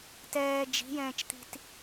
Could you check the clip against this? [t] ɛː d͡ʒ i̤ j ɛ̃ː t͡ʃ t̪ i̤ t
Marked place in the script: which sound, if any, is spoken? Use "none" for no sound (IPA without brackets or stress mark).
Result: t